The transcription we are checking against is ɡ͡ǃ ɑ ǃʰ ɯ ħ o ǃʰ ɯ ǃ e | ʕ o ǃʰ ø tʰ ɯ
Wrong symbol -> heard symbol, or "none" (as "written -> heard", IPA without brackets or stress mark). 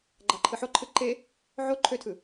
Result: none